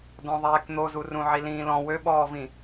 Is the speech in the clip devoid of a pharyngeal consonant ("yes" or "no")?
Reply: no